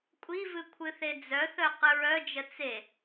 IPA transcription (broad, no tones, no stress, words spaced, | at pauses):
kʷʼivɨ kʷʰɨθed͡zœθœ qɨɹœd͡ʒə t͡se